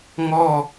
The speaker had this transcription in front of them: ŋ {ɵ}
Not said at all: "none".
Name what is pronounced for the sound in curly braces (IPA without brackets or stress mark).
ɔ